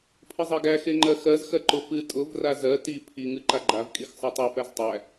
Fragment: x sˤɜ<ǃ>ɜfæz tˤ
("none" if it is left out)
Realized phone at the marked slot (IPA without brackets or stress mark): tˤ